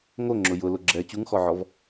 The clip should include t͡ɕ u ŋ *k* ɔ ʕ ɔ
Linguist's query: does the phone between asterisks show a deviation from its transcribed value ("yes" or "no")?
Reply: yes